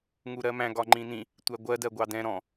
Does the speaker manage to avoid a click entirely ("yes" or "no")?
no